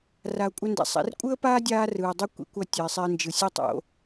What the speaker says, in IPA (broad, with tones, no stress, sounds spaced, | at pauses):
r a˨ ʊ̯ kʷʼ ʌ˧ n d ɛ̰˨ sˤ ɛ̰˧ r kʷʼ ɯ˦ ə̯ p aː˦ dʲ aː˦ r ɯː˨ dˤ u˦ kʷ ḭ˦ kʷ ʌ˧ tʲ ʌ˨ ɪ̯ sˤ e˧ ə̯ n d͡ʒ ɯ˨ sʲ o˦ tˤ o̰˦